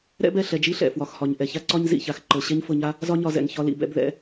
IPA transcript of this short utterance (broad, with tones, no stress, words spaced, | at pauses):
ɾɛ̰˥bɛ˩ ɬɛ˧d͡ʒi˥ɬɛ̰˩ fwɒ˩xhɒ˩ɲ ʔɛ˩ça˥ǀɒ˥ɲ zḭ˩ça˩x ǃɤ˩ ɕɛ˥ɲfɤ˧ɲa˥ | zɒ˥ɲɒ˧zɛ̰˩ŋ çɒ˧lḭ˩bɛ̰˧b ðɛ̰˧